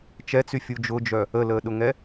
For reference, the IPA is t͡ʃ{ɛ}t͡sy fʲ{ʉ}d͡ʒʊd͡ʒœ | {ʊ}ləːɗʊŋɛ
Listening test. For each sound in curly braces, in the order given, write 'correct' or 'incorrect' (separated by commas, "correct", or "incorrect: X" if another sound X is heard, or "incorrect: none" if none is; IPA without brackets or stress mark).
correct, incorrect: u, incorrect: ə